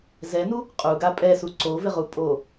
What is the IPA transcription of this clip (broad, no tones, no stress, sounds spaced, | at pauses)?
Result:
z ɛ n u | qʼ u ɡ a pʼ ɛ s u ǀ o v ɪ ʁ u pʼ o